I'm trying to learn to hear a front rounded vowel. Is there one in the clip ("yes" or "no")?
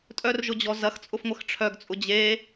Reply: yes